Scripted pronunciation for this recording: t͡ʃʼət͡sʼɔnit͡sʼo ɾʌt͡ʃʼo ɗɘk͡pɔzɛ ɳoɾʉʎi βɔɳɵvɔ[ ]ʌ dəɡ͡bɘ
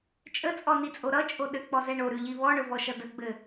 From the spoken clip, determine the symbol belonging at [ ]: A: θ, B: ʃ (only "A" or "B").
B